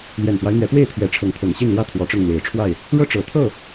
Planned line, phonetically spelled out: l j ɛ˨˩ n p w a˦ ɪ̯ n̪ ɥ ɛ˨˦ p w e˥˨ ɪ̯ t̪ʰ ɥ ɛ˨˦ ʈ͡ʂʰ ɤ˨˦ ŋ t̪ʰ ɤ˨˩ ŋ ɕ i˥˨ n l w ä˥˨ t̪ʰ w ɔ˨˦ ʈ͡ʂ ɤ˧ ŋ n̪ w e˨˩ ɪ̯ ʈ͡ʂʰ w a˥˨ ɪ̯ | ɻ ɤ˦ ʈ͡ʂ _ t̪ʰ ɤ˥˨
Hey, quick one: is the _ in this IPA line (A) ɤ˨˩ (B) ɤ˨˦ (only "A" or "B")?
A